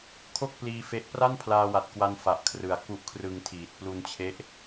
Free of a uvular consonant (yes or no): yes